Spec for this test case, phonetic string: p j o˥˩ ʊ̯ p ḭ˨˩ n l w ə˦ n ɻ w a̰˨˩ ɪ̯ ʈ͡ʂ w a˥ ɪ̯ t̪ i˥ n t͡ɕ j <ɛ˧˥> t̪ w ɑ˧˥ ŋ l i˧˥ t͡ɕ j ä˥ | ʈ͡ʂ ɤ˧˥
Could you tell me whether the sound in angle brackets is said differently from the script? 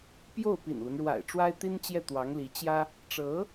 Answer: yes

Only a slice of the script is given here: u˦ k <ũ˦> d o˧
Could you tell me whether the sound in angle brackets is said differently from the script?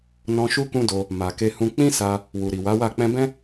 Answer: no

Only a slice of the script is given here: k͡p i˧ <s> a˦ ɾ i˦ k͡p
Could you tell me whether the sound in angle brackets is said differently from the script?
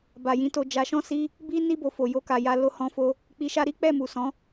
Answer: yes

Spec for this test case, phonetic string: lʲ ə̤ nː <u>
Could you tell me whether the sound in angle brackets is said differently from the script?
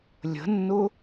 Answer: yes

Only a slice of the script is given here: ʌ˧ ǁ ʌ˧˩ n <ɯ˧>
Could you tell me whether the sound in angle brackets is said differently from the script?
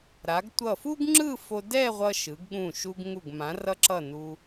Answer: yes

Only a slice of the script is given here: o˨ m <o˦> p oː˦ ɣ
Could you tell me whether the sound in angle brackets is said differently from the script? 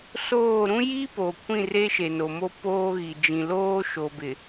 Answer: no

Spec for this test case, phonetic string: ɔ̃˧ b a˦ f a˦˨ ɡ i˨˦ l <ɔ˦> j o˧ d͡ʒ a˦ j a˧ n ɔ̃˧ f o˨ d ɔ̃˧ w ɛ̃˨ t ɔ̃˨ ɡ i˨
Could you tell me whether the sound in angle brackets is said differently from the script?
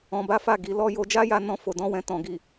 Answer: no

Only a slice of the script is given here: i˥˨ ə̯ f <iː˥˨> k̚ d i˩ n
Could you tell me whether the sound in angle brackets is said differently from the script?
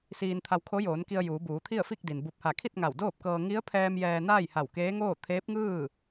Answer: yes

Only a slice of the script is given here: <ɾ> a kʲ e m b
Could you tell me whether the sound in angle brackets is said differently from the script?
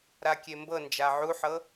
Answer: no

